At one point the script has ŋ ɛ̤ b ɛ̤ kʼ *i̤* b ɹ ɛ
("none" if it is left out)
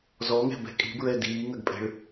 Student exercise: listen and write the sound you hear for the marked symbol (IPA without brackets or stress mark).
i̤